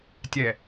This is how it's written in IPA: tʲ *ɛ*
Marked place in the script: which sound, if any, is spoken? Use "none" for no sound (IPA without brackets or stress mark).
ɛ